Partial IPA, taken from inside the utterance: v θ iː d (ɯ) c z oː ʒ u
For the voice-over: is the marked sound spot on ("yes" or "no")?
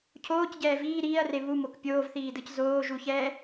yes